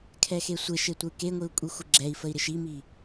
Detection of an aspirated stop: present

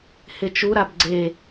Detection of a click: present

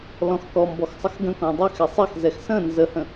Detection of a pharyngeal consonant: absent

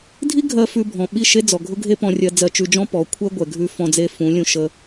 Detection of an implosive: present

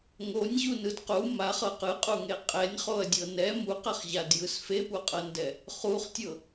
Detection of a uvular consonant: present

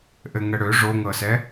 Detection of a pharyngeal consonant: absent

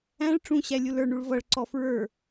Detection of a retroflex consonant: present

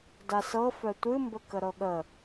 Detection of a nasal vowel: absent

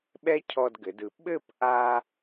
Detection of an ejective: absent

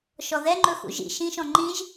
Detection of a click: present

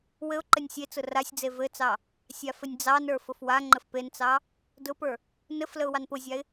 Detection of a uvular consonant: absent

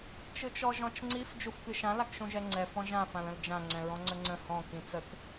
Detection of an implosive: absent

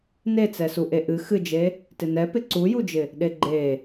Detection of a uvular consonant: absent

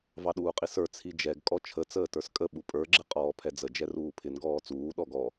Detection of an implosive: present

